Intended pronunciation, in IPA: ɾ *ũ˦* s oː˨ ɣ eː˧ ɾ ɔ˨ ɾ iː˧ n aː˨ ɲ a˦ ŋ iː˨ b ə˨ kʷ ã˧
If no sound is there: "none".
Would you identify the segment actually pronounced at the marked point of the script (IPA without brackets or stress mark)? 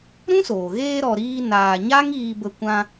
ũ˦